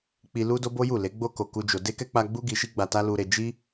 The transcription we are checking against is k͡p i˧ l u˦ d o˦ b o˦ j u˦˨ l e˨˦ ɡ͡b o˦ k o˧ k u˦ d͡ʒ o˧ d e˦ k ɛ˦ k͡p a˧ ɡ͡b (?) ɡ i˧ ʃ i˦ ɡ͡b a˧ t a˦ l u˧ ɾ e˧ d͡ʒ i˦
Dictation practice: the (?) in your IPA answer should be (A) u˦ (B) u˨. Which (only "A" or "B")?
A